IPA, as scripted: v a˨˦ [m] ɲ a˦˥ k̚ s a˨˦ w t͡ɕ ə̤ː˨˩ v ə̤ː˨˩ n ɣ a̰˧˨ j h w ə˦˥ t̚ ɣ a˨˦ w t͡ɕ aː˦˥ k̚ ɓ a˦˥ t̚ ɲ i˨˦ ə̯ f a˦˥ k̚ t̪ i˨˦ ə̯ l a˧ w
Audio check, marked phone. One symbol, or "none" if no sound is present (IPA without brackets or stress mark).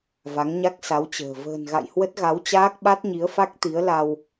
ŋ